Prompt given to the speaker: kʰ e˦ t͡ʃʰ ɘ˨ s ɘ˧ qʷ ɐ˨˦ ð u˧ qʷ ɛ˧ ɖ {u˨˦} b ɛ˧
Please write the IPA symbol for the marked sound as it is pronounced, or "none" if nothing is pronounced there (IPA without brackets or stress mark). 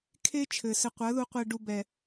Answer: u˧